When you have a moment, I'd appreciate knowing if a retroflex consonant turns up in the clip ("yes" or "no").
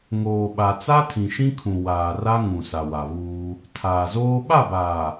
no